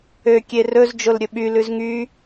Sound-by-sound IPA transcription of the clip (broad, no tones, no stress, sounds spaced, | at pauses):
ø kʲ e r ɵ z d͡ʒ o l ɾʲ ɵ ɓ y l ʉ z ŋ y